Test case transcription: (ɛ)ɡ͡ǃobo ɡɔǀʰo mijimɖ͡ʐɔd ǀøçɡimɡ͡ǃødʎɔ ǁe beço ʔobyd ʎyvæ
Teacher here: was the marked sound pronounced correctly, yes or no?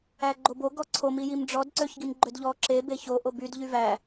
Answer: no